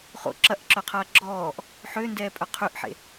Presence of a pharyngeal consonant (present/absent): present